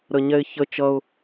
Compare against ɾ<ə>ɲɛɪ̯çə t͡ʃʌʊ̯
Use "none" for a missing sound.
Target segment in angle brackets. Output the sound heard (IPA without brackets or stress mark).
ə